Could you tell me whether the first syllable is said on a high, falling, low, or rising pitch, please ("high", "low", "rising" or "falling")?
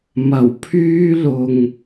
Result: low